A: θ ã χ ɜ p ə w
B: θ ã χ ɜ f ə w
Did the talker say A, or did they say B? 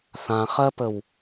A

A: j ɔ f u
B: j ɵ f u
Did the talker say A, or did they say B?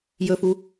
B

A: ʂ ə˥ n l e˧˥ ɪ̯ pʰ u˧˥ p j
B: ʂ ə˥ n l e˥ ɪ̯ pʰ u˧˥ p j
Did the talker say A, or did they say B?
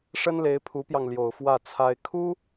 A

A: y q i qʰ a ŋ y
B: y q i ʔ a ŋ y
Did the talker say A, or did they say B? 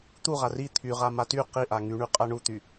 B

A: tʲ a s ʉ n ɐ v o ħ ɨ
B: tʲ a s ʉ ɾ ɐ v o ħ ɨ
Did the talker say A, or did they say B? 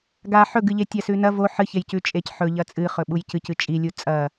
A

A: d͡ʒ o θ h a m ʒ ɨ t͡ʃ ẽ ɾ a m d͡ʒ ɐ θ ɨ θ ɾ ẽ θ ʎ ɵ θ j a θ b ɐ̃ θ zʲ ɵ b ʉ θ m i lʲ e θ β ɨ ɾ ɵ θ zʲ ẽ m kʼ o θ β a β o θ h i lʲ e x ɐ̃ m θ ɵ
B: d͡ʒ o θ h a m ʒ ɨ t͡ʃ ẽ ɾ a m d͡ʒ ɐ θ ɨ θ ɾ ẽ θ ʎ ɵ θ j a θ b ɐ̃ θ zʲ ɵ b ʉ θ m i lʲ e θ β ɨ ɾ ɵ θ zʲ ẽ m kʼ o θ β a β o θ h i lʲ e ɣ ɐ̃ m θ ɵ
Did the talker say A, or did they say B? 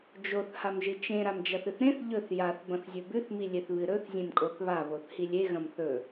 B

